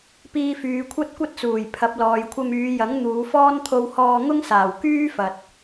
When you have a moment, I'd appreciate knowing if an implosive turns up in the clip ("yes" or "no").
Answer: no